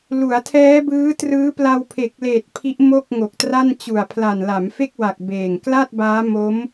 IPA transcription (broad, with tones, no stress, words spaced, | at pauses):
lu˩˦a̯tʰɛː˦˥bɯː˦˥trɯː˦˥ pla˧wpʰe˨˩k̚leː˨˩t̚ pʰi˦˥ʔ mo˥˩k̚ŋo˨˩k̚tra˥˩n t͡ɕu˨˩a̯pʰla˨˩n la˩˦mfe˥˩k̚ wa˨˩k̚ beː˨˩ŋ kla˥˩t̚baː˦˥mo˦˥m